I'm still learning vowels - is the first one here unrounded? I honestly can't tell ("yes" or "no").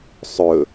no